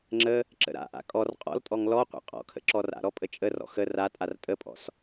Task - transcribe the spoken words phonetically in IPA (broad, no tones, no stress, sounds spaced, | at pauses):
ŋ͡ǁ ə | ǁ ə̰ ɾ a̰ ʔ a̰ kʼ ɔ r qʼ ɔ̰ l tʼ ɔ ŋ l ɔ qʷ a̰ qʼ ɔ̰ kʰ ə̰ ǁ ɔ r a̰ ɾ ɔ pʼ ə t͡ʃʼ ə r ɔ̰ x ə r a tʼ a r tʼ ə pʼ ɔ̰ s